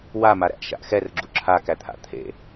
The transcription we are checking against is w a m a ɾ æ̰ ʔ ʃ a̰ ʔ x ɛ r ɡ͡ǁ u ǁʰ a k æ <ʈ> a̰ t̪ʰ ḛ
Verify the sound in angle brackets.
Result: incorrect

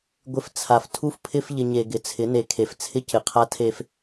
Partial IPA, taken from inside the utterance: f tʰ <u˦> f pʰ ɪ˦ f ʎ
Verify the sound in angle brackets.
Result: correct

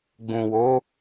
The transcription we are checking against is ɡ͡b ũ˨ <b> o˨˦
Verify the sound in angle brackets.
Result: incorrect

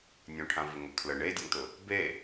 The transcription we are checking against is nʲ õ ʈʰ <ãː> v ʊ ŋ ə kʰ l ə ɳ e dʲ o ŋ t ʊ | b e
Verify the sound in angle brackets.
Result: incorrect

